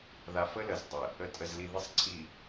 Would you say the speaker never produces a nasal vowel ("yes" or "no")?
yes